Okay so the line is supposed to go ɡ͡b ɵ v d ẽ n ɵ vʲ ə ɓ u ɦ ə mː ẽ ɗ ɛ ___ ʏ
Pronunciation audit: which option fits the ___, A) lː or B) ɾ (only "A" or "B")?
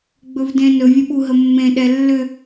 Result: A